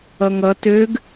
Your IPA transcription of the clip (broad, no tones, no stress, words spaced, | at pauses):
ʌŋʌ tøɡ